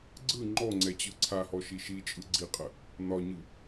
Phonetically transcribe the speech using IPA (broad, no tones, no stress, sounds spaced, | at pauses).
ɡ͡ǀ ɯ ŋ͡ǃ ɔ ŋ͡ǀ ɛ t͡ɕ ɯ ǀʰ a h ɔ ʃ i ʃ i t͡ʃʼ ɯ ɡ͡ǀ i qʼ ə | n ɒ ɲ ɯ